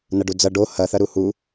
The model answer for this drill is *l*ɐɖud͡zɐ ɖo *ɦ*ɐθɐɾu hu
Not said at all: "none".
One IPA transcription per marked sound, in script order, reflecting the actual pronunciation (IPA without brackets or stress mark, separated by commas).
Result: n, h